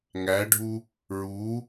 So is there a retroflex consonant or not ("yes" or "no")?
yes